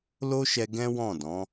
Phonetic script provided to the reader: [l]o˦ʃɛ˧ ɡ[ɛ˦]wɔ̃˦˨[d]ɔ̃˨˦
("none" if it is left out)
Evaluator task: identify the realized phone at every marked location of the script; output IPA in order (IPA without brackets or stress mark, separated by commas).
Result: l, ɛ̃˦, d